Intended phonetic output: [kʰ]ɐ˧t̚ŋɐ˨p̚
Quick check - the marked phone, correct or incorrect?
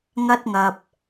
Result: incorrect